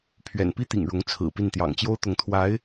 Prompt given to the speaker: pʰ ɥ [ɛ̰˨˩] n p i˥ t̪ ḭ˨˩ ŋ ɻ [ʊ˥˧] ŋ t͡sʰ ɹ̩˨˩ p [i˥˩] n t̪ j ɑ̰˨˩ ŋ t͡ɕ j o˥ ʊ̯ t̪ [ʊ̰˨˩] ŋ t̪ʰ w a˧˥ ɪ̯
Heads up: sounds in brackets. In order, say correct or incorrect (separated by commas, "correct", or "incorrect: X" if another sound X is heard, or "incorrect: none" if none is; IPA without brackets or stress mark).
correct, incorrect: ʊ˧˥, correct, incorrect: ʊ˧˥